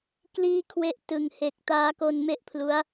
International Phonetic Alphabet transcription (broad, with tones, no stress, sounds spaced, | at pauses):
k l iː˥˩ kʰ w e˥˩ ʔ t ɯ˨˩ ŋ h e˨˩ k̚ t aː˦˥ k o˧ n m e˥˩ ʔ pʰ l u˦˥ a̯